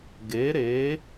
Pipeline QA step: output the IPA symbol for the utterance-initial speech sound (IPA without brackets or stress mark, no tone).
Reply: ɡ